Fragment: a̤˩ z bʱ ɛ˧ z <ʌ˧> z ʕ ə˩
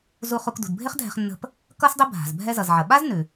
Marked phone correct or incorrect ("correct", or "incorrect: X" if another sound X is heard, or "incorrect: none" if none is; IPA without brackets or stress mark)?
incorrect: ʌ˩